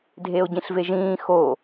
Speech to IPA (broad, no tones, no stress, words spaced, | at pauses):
dʱeo̯ɟĩɬveʒĩː xo